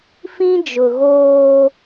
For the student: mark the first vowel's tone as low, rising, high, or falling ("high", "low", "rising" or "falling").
high